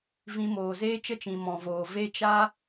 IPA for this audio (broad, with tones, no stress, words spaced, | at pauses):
vĩ˧moː˨ zeː˦t͡ʃə˦t͡ʃĩ˨ mɔ̃˨voː˨ ve˦ t͡ʃa˦